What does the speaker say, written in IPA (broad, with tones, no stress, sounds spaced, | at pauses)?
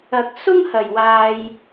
ɐ˥ k̚ s ʊ˥ ŋ h ɐ˨ j w aː˧ j